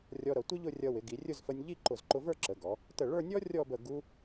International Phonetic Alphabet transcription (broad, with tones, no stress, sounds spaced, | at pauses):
rʲ ɔ˧ ɾ ʌ˩˧ tʷ ɪ˥ ʎ ʊ˥˧ rʲ ʌ˧ w ɪ˩˧ ɡ i˩˧ rʲ ʊ˥˧ z f ə˧ nʲ ʎ i˥˧ ǃ ʊ˧˩ z ǃ ʊ˧ v ə˞˥˧ ǁ ə˩˧ ɡ ɔ˩˧ | t ə˧˩ ɭ ə˞˥˧ nʲ ɔ˥ rʲ ɔ˥˧ b ə˧˩ ɡ u˧